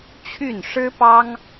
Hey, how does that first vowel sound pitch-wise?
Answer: falling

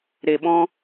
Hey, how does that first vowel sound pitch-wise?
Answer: low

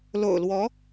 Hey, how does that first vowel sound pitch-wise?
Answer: low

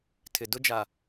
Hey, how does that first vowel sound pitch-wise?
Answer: low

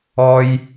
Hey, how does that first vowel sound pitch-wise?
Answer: high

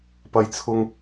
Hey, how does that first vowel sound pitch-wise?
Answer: high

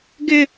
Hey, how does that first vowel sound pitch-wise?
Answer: high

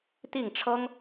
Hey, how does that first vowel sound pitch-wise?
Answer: falling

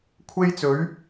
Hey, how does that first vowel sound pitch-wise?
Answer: high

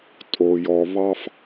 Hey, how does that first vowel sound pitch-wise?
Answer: low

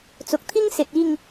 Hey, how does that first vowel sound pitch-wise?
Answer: low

